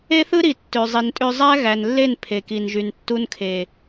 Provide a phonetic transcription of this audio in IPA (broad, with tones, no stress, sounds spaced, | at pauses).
e˦ θ ɯ˦ ɾ i˨ tː ø˨ zˤ i˨ n tʼ ø˧ zˤ æ˦ ɣ æ˨ n lː e˦˨ n pʰ e˨ k i˨ n ʒ y˨ n tː u˧ n kʰ e˨